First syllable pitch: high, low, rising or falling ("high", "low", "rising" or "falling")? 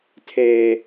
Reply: high